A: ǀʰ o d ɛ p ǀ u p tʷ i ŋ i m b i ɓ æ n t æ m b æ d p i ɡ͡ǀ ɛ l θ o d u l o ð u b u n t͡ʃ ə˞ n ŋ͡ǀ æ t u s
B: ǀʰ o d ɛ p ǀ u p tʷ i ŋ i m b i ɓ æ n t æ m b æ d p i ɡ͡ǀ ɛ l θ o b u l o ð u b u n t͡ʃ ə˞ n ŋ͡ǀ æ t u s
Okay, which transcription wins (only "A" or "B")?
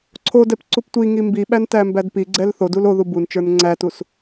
A